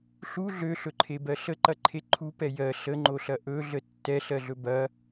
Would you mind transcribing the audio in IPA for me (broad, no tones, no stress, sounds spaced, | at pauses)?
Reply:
ɬ u ɮ ø ɬ ɵ ǃʰ e b ɜ ɬ ə ǃ ɐ ǃʰ e ǃʰ u p ɛ j ɜ ɬ ə ŋ͡ǃ o ɬ ɐ ʔ ɵ ɮ ə tː ɛ ɬ ɜ ɮ ɵ b ɐ